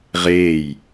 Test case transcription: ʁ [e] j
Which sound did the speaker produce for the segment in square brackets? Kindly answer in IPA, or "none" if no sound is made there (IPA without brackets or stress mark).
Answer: e